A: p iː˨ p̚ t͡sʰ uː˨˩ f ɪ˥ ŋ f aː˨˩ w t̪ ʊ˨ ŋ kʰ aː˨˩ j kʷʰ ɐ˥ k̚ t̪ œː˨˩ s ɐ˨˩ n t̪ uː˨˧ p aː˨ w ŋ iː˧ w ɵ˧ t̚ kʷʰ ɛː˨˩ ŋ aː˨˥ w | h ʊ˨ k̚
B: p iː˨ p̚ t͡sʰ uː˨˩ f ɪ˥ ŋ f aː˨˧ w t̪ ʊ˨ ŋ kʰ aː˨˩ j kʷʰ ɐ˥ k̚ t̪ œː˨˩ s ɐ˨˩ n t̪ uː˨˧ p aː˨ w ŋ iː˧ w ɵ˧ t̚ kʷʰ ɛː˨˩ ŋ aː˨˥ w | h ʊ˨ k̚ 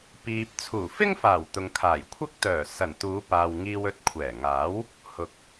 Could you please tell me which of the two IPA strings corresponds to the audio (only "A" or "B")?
A